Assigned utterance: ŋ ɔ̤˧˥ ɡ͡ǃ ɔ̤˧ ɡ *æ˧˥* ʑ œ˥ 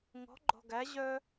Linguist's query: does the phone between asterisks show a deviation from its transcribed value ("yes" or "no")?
no